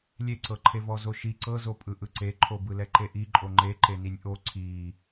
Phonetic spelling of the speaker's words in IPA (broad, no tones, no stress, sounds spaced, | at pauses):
lʲ e ǀ ɤ ǃʰ e v ɔ z o ʃ i ǀ ɤ z o pʼ ɯ ʔ ɯ ǀ e ǃʰ o b ɯ l ɛ ǃ e ʔ i ǃʼ o ŋ͡ǃ e ǃ e n i nʲ ʔ o ǀʰ i